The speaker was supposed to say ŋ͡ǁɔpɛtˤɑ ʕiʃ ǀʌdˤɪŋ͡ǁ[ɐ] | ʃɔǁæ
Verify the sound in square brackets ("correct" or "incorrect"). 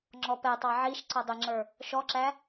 incorrect